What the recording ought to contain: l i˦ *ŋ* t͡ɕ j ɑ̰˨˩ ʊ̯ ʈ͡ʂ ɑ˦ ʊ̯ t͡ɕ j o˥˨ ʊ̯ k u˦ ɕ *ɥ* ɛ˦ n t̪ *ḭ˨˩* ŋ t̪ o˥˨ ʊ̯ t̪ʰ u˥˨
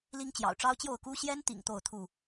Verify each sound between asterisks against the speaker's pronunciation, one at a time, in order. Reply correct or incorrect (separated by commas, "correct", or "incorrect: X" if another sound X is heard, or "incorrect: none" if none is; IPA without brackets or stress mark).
correct, incorrect: j, correct